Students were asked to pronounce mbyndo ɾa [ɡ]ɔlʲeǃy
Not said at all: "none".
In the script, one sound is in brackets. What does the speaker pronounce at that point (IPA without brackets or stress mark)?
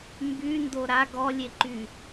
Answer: ɡ